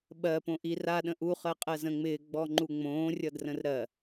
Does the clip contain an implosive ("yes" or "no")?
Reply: yes